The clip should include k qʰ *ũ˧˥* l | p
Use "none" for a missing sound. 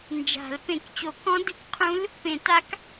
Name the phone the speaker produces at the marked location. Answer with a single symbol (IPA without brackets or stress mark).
ũ˧˥